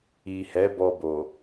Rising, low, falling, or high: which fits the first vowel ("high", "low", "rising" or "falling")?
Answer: low